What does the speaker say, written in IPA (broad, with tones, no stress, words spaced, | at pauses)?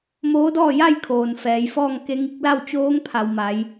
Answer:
moː˧˥dɔː˥˨ja˥˨jkʰoː˩n fɛː˩˧jfɔː˥˨ŋ ke˧˥ŋi˧˥k̚ la˥˨wt͡ɕoː˧˥ŋpʰa˩w ma˩˧j